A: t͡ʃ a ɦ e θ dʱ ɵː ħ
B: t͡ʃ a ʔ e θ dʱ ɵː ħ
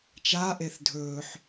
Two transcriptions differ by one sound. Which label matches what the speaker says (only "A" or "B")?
B